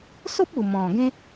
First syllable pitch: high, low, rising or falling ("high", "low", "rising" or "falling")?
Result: high